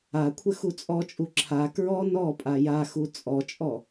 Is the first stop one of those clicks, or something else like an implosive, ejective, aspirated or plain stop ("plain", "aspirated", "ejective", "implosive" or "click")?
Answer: aspirated